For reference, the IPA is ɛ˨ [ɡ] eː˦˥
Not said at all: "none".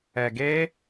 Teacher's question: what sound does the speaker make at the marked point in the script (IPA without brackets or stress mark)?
ɡ